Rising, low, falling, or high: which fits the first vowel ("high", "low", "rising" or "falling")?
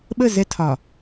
falling